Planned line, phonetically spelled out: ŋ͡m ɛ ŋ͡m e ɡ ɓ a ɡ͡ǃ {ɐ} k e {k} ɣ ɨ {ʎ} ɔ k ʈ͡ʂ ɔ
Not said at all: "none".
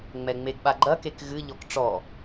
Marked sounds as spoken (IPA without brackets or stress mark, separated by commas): ɐ, k, ʎ